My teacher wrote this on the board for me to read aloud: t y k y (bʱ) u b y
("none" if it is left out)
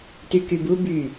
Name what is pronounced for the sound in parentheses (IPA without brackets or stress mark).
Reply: b